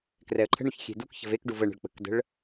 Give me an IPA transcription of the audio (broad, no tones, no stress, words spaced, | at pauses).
krɛə̯ǃʰə̤ɳuç xʲe̤dukçə̤v ekɖuv əɳə̤ɭ k͡pə̤kdə̤ɭ